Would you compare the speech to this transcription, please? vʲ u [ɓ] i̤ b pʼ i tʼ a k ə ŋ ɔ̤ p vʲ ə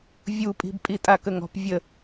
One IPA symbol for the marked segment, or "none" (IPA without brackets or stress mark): pʼ